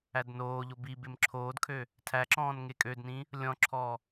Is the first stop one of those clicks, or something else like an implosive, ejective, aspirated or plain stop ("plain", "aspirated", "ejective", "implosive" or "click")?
plain